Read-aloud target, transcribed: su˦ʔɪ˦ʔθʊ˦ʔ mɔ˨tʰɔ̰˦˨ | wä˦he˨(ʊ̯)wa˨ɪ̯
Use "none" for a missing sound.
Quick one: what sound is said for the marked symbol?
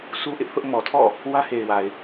ɪ̯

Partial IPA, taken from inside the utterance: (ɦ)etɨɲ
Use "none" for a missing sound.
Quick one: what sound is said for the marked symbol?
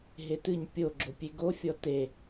ɦ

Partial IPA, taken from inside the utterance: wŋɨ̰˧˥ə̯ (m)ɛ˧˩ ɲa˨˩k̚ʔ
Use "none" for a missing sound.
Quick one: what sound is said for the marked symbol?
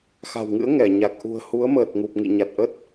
ŋ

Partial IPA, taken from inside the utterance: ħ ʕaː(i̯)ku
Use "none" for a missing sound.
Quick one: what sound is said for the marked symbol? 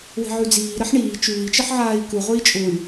i̯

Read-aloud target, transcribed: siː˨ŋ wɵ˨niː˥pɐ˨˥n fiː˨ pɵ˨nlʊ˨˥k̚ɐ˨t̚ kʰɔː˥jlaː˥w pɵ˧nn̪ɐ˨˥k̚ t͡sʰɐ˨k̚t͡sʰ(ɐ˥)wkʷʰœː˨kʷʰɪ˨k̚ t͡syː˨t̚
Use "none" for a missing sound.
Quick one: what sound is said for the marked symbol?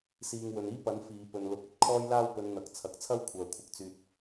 ɐ˥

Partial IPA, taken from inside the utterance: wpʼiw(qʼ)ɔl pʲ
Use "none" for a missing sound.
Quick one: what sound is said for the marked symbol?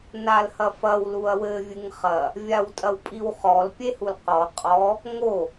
χ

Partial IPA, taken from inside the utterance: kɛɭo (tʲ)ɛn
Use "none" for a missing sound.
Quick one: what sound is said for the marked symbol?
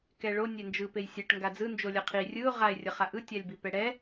nʲ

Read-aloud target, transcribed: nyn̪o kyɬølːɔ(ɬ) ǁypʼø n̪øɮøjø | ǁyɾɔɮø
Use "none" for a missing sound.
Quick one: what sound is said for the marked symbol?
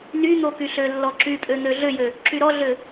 none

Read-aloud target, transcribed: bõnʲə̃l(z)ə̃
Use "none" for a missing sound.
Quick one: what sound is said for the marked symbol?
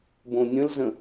z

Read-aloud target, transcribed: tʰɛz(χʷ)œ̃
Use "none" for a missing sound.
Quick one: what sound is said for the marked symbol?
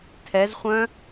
χʷ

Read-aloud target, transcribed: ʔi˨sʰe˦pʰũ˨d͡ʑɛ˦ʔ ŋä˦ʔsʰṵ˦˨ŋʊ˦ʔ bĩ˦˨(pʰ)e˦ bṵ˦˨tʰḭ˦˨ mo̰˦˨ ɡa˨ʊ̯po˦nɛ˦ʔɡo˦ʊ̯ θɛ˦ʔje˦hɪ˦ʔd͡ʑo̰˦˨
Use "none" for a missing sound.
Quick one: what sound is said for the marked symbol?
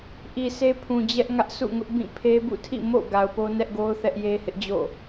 pʰ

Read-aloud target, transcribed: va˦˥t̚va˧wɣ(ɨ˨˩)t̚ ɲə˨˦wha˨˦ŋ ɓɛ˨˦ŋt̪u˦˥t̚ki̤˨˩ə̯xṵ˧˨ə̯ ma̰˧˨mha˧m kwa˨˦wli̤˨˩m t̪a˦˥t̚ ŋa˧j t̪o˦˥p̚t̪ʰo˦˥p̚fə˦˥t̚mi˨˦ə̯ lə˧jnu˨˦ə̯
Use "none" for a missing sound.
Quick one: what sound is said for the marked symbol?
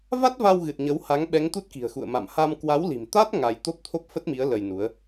ɨ˨˩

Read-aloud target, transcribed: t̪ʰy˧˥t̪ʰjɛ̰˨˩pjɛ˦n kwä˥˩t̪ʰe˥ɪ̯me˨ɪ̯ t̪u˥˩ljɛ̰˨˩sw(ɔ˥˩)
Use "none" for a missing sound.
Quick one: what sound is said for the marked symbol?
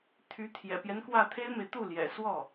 ɔ˥˩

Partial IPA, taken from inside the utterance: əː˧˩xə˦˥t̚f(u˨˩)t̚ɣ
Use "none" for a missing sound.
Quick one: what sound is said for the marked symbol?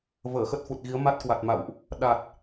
u˨˩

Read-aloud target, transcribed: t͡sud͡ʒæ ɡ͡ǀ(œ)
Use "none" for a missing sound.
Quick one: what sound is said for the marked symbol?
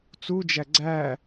æ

